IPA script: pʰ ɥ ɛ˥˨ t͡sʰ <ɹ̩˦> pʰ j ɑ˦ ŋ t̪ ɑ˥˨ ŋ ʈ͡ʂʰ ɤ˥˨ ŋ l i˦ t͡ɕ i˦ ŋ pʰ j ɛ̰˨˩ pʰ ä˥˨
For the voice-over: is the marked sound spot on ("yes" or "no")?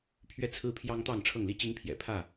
yes